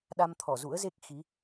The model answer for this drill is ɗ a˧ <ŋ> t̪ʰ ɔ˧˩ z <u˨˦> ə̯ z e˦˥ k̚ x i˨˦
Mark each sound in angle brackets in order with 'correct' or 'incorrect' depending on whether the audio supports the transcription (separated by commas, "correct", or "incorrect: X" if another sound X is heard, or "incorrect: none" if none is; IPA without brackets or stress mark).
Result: incorrect: m, incorrect: ṵ˧˥